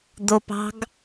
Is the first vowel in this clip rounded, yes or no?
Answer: yes